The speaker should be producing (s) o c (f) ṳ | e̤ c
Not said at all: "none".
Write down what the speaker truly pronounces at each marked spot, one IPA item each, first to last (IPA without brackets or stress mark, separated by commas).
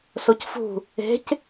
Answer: s, f